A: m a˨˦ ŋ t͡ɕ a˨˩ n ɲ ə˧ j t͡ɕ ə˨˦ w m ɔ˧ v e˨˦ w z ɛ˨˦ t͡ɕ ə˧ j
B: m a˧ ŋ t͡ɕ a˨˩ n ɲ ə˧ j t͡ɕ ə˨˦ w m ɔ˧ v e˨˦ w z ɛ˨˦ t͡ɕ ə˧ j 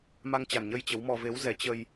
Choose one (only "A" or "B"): B